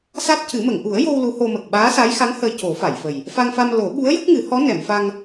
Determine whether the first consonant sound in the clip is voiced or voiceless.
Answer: voiceless